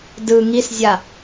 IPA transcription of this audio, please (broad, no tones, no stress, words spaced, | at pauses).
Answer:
dɯ ŋiszʲa